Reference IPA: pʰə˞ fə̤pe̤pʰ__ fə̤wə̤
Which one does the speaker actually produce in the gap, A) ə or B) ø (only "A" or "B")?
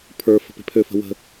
B